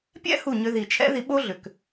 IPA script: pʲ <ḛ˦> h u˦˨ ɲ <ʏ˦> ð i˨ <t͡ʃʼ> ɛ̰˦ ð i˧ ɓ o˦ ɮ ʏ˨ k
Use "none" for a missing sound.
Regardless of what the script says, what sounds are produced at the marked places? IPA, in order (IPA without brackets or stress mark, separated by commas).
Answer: ɛ̰˦, ʏ˧, t͡ʃʰ